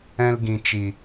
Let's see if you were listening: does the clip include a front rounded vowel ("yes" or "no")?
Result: no